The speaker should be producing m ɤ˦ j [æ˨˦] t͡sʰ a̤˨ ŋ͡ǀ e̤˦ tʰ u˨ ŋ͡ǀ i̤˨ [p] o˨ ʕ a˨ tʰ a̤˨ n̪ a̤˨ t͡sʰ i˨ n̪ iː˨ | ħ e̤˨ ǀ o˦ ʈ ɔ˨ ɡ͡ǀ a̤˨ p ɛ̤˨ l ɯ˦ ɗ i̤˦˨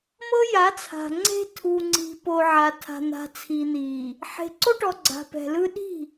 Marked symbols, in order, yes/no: no, yes

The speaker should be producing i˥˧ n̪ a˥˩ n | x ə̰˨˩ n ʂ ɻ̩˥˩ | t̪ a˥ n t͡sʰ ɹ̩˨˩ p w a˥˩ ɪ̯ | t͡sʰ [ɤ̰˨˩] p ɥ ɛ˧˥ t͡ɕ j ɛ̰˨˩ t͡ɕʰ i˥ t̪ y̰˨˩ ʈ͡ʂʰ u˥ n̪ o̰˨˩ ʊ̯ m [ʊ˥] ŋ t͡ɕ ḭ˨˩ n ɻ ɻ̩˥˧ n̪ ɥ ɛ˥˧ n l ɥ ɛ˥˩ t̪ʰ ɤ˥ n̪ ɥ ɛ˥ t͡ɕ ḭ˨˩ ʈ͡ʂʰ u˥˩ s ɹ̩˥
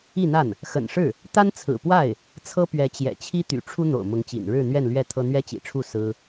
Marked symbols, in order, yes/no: no, no

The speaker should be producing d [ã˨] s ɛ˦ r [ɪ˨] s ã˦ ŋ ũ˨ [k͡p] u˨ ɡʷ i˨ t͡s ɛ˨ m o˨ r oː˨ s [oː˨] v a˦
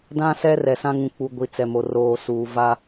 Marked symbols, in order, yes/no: no, no, yes, no

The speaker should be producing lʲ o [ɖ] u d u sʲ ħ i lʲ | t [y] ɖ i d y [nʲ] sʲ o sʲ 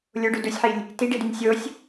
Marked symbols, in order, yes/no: yes, no, yes

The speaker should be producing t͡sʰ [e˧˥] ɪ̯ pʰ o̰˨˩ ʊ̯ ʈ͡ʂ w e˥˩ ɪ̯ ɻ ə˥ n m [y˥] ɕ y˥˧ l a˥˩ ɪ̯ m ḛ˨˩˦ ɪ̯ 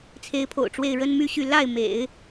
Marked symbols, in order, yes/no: yes, no

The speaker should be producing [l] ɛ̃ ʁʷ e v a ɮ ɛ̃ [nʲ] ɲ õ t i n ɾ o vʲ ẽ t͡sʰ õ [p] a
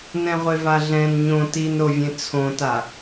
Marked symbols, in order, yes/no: no, no, no

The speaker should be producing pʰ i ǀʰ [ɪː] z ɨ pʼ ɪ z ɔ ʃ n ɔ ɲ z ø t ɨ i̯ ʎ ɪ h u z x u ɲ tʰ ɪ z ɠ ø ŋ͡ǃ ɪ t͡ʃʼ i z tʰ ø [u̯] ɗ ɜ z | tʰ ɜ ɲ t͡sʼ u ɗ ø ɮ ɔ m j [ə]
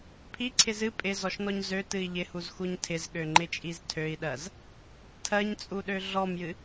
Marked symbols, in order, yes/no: no, no, no

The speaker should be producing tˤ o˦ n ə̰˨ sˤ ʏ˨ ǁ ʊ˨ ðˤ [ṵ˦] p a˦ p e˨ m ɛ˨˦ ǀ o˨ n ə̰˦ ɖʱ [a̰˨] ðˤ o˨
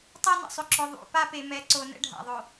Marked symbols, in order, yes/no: no, yes

